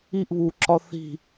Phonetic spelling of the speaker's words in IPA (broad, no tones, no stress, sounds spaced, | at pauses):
i ʔ β u ǁ ɒ θ i̤